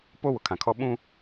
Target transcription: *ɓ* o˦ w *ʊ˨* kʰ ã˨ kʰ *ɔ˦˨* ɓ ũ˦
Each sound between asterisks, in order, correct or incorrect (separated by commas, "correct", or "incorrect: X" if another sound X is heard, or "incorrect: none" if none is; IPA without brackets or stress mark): incorrect: p, correct, incorrect: ɔ˦